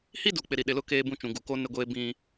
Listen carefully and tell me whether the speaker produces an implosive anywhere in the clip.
yes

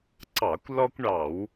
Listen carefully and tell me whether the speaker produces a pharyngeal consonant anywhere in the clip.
no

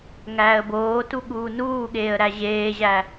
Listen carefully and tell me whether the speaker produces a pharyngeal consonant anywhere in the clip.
no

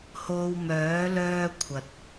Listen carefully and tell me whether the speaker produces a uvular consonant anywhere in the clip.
no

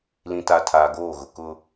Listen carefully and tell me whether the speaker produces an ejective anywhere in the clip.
no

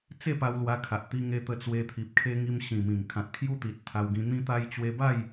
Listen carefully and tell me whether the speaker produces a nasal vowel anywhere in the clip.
yes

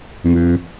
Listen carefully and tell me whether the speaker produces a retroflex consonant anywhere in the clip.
no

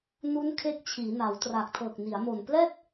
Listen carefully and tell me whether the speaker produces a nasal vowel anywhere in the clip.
no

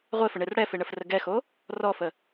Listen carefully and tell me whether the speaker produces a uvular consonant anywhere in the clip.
yes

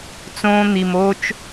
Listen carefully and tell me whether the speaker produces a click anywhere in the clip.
no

